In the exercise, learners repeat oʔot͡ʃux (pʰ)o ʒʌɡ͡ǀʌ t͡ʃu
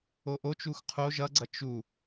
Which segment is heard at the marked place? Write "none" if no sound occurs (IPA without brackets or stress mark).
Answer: qʰ